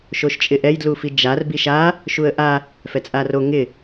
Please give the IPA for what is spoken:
ʃ o ʃ t͡ʃʼ ɪ ʔ ɛ j d l u f i d͡ʒ a r b i ʃ a | ʃ u ə̯ ʔ a | f ɛ t͡sʼ a r o ŋ ɪ

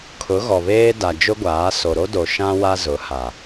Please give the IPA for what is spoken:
kʰ ʊ˨˦ ɣ ɔ˨ β eː˦ d a˨ d͡ʒ ʊ˦ ɡʷ aː˨˦ s o˨ ɾ o˦ d o˨ ʃ ã˦ w a˦ z ʊ˨˦ h a˨

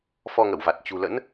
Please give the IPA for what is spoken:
f ɔ˧ ŋ ə̰˧˨ w v a˨˩ t̚ t͡ɕ ṳ˨˩ l ə̰˧˥ n

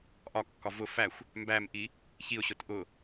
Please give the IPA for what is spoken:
ʔ ɒ kː ɒ v ʊ f æ xʷ | m b æ m ʔ i | ç i ʊ̯ ɕ ʊ t ʔ ʊ

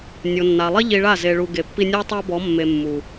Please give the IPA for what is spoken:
nʲ o˨ nː a˨ lˠ i˦ ʎ i˧ ɭ a˦˨ z e˧ ɭ u˧ ɡ e˨ pː i˧ nʲ o˦ tˤ a˦ b ɔ˨˦ mː e˧ mː u˨

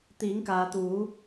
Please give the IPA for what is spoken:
t̪ iː˩˧ ŋ k aː˩ t̪ uː˩˧

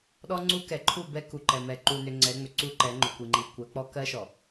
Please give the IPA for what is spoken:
ɗ ɔ˦ ŋ͡ǀ u˦ k ɛ˨ ǃʰ u˦˨ b ɛ˦ k u˨ ǃ ɛ˨ m ɛ˨ ǃ u˨ n ʏ˨ ŋ͡ǀ ɛ˨˦ ŋ͡m ʏ˨ ǀ u˦ ǃ ɛ˨˦ ŋ͡ǃ ʏ˨ kʷ i˨ ŋ͡ǃ i˨ kʷ ɜ˨˦ k͡p ɔ˦ k ɜ˦ ʃ ɔ˨

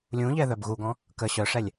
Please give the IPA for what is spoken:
lʲ ũ ʎ ɛ ð œ b ɣ u ɡ ɔ̃ | k ə ɕ œ ʂ ɛ lʲ

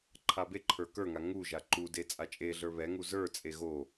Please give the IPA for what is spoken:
ǃʰ a b e ǃʰ ə˞ k ə˞ ŋ a ŋ u ʒ a ǃ u d e t͡sʼ a t͡ʃʼ e ɮ ə˞ β ɛ ŋ u z ə˞ t͡sʼ e ɣ o

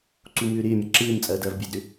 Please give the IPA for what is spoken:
ǀ u m ʏː ɾ ɪː mʲ ɐ ǁ ɪː m t͡sʼ ɐː d ɐː v bʲ ɛ d ɾ ʏ

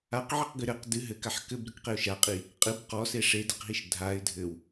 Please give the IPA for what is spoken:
a q ʕ ɘ q ɡ ɨ ɾ ɘ q d ɨ ɦ ɘ k a ħ k ɘ b ɾ ɨ k q e ʊ̯ ʃ a qʼ i | qʼ ɨ b q ɔ s e ʂ e d ɘ q ɦ i ʃ dʱ a ɪ̯ dʱ ɘ w

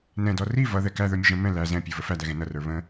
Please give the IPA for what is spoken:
n ɛ̃ d ɔ r i v ʌ ð ɛ k æ ð ə˞ mʲ ʊ ʒ ə̃ m ɛ̃ l æ z ɛ̃ pʲ ə˞ v ə f æ d æ ɣ ɛ̃ n ʌ r ə˞ β ə̃

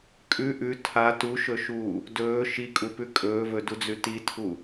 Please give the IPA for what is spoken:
kʼ ʉ ʔ ʉ tʰ a t u ʃ ɵ ʃ uː | d ɵː ʃ i kʼ u p ʉ kʼ ɵː v ɵ d u d͡z ʉ t i tʰ u

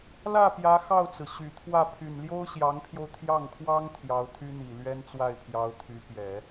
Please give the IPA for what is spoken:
l ä˥˩ p j ä˧˥ x ɑ˥˩ ʊ̯ t͡s ɹ̩˩ ɕ y˨˩ t̪ʰ w ä˥˩ pʰ y˨˩ n l j o˥ ʊ̯ ɕ j ɑ˧˥ ŋ pʰ j o˧ ʊ̯ t̪ʰ j ɑ˥˩ ŋ kʰ w ɑ˥ ŋ t̪ʰ j ɑ˧˥ ʊ̯ t̪ʰ y˥ n̪ i˨˩ l ɥ ɛ˥ n t͡s w a˥˩ ɪ̯ pʰ j ɑ˧˥ ʊ̯ t̪ʰ y˧˥ p j ɛ˨˩˦

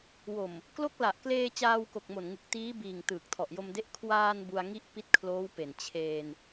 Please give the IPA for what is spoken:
w o˨˩ m | k l o˦˥ k̚ l a˨˩ ʔ k l eː˧ t͡ɕ aː˧ w k o˨˩ k̚ m o˨˩ n ŋ ɯ˨˩ k̚ t iː˦˥ b iː˨˩ ŋ t ɯː˨˩ k̚ tʰ ɔ˨˩ ʔ j o˧ m d e˦˥ ʔ kʰ w aː˧ n b u˧ a̯ ŋ i˥˩ ʔ p i˥˩ t̚ kʰ l oː˦˥ w p e˨˩ n t͡ɕʰ eː˧ n

